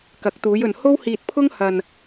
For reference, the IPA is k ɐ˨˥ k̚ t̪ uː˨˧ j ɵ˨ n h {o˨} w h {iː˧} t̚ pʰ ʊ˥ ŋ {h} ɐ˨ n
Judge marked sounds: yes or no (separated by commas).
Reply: no, yes, yes